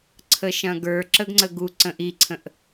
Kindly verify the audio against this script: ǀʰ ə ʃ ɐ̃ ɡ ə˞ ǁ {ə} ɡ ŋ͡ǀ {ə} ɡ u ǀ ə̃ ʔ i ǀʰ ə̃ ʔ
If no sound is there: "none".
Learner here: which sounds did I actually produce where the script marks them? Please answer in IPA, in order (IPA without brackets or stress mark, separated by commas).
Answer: ə, ə